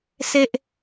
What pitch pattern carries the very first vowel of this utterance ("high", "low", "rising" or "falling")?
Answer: low